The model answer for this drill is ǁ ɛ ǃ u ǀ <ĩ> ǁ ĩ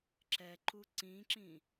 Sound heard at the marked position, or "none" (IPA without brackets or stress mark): ĩ